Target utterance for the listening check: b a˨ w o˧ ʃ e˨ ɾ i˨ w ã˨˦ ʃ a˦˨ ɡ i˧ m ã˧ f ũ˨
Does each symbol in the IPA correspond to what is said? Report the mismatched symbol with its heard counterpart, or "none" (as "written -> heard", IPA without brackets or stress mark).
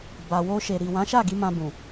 f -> b